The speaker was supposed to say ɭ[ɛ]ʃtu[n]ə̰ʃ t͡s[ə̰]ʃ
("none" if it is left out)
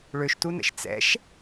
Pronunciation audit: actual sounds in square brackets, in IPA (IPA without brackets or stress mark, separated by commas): ø, n, ɛ̰